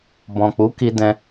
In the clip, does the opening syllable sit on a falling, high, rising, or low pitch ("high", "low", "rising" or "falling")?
low